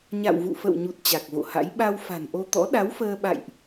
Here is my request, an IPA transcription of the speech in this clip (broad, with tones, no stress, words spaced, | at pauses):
ɲa̰˧˨wvṵ˧˨fə̰˧˨wɲu˨˩t̚ t͡ɕa˨˩k̚vo̰˧˨ha̰˧˥j ɓa˧wfa̤˨˩nʔo˧ t̪ɔ̰˧˥ ɗa˨˦wfəː˧ɓa̰˧˨jʔ